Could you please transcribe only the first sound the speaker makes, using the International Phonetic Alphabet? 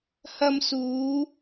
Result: h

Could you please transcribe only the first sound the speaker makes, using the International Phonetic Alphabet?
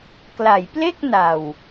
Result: k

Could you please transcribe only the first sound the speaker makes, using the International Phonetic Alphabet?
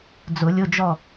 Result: d͡z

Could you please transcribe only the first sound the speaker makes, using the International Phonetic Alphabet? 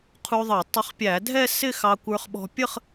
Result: qʰ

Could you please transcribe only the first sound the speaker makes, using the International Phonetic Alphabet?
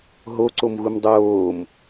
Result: ɦ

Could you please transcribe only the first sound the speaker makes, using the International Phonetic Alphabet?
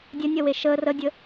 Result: dʲ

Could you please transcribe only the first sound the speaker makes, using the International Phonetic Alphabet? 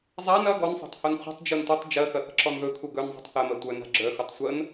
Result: zˤ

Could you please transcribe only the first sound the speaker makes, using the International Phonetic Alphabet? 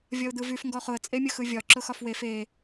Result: vʲ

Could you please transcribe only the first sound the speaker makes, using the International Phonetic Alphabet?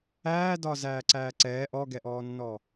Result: æː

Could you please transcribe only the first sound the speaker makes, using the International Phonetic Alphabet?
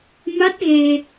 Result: m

